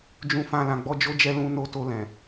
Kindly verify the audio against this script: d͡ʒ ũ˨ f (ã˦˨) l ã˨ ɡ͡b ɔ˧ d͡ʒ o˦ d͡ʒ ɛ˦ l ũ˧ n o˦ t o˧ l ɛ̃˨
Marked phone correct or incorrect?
incorrect